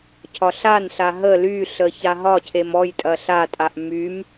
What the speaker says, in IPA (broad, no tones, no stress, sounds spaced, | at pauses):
cʰ ɒ ɬ a n ɬ a ɦ ə l y ɬ ə ç a ɦ ɒ cʰ e m ɔ j tʼ ɐ ɬ a tʼ a ʔ m y m